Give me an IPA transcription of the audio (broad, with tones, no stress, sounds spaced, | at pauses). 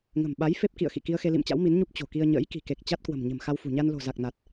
ŋ ə̤˨˩ m ɓ a˨˦ j f e˦˥ p̚ k ḭ˧˨ ə̯ x ḭ˧˨ k i˧ ə̯ x e˧ l ḭ˧˨ m t͡ɕ a̰˧˥ w m i˨˦ n ɲ u˦˥ p̚ t͡ɕ o̤˨˩ k i˧ ə̯ ɲ ə̰ː˧˥ j k i̤˨˩ k e˨˩ k̚ t͡ɕ a˦˥ t̚ k w ə̤˨˩ m ɲ ə̤˨˩ m x a˧ w f ṳ˨˩ ɲ a˧ n l o̤˨˩ z a˨˩ k̚ n a˨˩ t̚